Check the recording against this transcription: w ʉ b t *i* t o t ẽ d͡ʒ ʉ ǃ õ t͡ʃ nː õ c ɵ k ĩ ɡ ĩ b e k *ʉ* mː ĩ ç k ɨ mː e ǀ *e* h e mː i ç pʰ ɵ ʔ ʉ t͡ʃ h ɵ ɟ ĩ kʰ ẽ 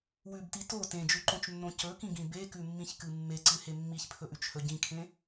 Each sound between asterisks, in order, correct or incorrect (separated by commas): correct, correct, incorrect